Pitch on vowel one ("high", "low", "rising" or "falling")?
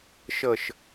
low